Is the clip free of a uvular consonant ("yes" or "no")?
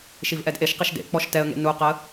no